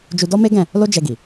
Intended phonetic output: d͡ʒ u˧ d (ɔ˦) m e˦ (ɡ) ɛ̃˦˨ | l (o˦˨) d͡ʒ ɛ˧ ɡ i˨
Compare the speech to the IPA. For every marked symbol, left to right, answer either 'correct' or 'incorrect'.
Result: correct, correct, incorrect: o˦

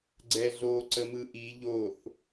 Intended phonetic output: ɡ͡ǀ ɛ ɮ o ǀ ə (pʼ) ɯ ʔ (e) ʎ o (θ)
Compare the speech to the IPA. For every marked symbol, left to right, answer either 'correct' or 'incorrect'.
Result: incorrect: m, incorrect: i, correct

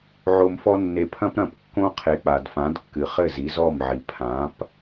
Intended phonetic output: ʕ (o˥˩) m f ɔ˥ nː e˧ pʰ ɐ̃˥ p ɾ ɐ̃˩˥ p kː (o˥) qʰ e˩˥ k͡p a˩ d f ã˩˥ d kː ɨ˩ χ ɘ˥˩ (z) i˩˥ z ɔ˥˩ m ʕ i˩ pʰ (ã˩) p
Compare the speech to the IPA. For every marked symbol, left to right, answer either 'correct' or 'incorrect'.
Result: incorrect: o˧, incorrect: õ˥, correct, incorrect: ã˩˥

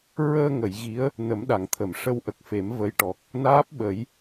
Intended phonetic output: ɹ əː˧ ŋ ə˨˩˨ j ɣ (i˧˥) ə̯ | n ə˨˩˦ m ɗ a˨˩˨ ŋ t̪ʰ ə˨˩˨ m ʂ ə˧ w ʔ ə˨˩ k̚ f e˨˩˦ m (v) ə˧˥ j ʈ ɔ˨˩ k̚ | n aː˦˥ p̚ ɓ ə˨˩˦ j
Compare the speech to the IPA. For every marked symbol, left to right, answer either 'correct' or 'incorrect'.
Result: correct, correct

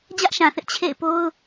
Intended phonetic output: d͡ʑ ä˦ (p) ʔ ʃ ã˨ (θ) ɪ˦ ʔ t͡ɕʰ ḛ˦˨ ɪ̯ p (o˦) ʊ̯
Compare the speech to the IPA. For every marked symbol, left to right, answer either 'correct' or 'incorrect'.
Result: incorrect: none, correct, correct

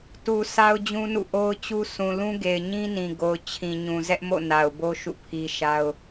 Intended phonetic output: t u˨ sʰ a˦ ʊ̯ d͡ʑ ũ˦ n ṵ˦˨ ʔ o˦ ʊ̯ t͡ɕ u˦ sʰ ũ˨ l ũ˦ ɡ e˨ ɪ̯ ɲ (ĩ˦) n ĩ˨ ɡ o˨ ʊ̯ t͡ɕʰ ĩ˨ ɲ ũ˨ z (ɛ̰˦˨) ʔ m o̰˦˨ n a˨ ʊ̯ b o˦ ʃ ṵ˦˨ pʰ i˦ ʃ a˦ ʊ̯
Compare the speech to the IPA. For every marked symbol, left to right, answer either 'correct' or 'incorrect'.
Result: correct, incorrect: ɛ˦

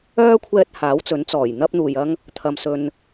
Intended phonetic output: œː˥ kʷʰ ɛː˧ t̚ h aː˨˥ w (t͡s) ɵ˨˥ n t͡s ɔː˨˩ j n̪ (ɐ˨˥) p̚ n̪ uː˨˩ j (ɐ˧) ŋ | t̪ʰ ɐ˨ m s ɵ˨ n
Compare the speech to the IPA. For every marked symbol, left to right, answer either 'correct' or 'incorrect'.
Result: correct, incorrect: ɐ˥, correct

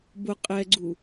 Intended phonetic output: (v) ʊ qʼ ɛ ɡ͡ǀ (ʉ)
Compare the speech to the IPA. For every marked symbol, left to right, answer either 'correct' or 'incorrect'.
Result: incorrect: b, incorrect: u

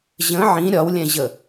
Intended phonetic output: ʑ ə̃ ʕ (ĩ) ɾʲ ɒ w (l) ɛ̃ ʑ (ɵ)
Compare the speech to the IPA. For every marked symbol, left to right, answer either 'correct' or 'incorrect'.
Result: correct, incorrect: lʲ, incorrect: ə

